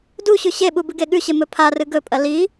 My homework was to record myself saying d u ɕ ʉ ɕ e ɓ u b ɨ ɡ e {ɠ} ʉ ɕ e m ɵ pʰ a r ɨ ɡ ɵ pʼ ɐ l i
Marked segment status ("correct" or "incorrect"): correct